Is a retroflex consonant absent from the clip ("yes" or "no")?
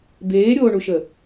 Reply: no